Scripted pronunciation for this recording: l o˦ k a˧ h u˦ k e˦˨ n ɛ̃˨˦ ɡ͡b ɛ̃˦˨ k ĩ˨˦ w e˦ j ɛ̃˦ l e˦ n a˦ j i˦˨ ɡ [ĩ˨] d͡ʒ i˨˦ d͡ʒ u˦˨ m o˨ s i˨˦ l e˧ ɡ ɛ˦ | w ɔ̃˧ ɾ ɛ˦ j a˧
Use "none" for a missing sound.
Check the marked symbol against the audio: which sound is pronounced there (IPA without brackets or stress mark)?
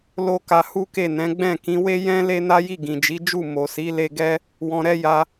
ĩ˨